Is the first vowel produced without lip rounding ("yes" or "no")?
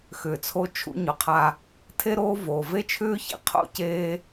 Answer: no